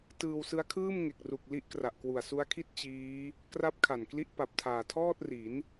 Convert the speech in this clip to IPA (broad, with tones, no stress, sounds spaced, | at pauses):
t ɯː˧ w s ɯ˦˥ a̯ kʰ ɯː˥˩ m ŋ e˨˩ k̚ r u˨˩ k̚ l i˦˥ ʔ k r a˨˩ ʔ k w u˨˩ a̯ s u˦˥ a̯ kʰ i˥˩ t̚ t͡ɕ iː˦˥ | k r a˦˥ p̚ kʰ a˨˩ n k l i˦˥ ʔ p a˨˩ p̚ tʰ aː˨˩ tʰ ɔː˥˩ t̚ r i˩˦ n